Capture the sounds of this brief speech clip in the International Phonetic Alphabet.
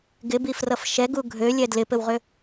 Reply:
ɡ ɪ b i f r ʌ f ʃ ɛ ɡ u ɡʱ ø lʲ ɛ d l ɪ p ɘ w ʁ ø

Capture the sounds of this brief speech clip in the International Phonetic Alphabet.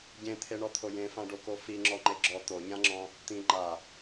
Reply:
ɟ ẽ t̪ʰ e ɳ ɔ t̪ʰ o j ẽ f ã ɖ o k o f i ŋ͡ǁ ɔ ŋ͡ǃ e ɡ͡ǁ ɔ t̪ o ɲ ã ŋ͡ǁ ɔ̃ | t̪ ĩ ŋ͡ǃ a

